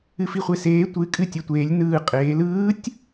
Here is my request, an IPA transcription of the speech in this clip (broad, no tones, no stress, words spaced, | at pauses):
ɨfiχʷeseː tʷɨkʼɨ tʲɐtʷeːlʲ nɯː qʼeːl ɯːtʲ